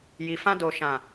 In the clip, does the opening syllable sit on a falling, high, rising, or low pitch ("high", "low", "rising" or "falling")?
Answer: low